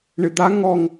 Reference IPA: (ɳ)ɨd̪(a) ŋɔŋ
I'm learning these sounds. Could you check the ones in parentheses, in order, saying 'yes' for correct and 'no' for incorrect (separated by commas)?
yes, yes